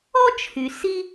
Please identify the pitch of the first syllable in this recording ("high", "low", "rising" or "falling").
high